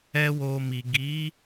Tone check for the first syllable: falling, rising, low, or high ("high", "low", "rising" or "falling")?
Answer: high